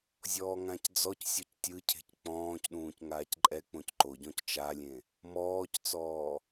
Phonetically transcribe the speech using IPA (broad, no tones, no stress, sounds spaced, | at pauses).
zʲ ɔː ŋ ã c d͡z ɔ c sʲ ɔ c tʲ ɯ cʰ e̤ c k͡p ɔ̃ː c ɗ ũː c ŋ aː c ǃʼ ɛ k͡p õ c ǃ o ɟ ɔ̃ c t͡ʃ a lʲ ẽ | m ɔː c t͡s ɔː